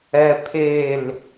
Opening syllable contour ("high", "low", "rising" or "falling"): high